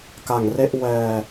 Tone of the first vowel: low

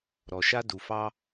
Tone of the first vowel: low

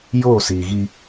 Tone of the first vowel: falling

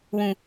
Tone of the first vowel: low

